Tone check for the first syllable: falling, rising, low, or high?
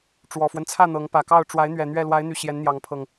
low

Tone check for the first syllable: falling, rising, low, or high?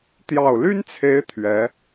low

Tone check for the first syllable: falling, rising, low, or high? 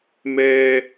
high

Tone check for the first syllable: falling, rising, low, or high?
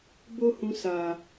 high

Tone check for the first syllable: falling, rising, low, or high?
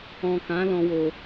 low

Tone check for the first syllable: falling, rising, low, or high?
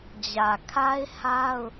low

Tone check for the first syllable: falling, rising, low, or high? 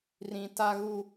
low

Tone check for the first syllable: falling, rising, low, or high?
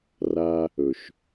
high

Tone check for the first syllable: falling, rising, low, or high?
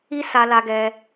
high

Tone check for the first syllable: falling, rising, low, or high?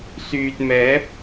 low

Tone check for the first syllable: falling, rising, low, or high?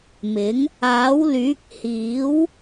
rising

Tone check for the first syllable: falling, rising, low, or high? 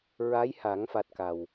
rising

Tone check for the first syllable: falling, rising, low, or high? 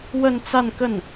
falling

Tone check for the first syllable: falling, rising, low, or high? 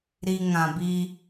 low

